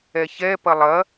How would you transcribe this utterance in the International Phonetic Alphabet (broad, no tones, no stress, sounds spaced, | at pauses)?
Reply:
ɛ ç ɛ p ɐ lˠ ɐ